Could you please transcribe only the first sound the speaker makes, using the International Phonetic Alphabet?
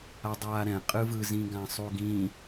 a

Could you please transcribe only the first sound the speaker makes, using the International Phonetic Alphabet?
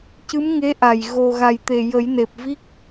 c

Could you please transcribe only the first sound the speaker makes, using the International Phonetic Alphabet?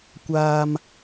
kʷ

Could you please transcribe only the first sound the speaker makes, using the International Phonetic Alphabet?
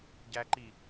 ɟ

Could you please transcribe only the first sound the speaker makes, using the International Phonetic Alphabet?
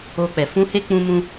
o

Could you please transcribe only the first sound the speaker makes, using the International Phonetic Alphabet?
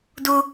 d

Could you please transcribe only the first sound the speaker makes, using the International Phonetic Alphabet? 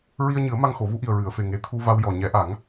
ɹ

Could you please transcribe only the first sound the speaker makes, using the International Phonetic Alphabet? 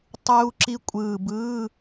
tˤ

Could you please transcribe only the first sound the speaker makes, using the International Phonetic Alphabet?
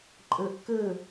ǃʼ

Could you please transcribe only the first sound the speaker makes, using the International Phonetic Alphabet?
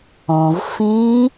õ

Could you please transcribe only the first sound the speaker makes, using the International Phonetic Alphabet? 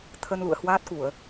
t̪ʰ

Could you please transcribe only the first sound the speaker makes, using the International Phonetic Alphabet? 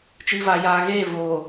t͡ʃ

